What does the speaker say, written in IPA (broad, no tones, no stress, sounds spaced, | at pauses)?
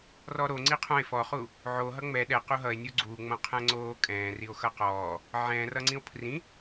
r ɔ ɾ o ŋ͡ǀ i qʰ õ e̯ f ɔ χ u | ʕ o ɦ ʌ ŋ͡m ɛ ɗ ɛ q u ɦ ʌ e̯ nʲ u ɡ͡ǀ u ŋ͡m õ qʰ ɛ̃ ŋ͡ǀ oː kʼ ɛ̃ː r i o̯ x ʌ q ɔː | ʕ ɛ̃ r ʌ ŋ͡ǀ ĩ o̯ pʰ r ĩ